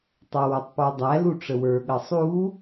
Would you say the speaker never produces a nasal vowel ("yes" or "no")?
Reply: yes